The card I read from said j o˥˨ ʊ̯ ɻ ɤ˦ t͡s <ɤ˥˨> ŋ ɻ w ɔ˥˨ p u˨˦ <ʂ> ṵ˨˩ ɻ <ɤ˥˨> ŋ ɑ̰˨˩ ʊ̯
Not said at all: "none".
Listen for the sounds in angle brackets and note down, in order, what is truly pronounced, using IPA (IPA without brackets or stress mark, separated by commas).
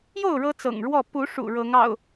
ɤ̰˨˩, ʂ, ɤ˨˦